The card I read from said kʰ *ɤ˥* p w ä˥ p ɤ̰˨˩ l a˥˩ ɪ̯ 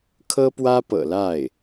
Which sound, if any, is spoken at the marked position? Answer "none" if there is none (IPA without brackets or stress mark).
ɤ˥